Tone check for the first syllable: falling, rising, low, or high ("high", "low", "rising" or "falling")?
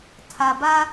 low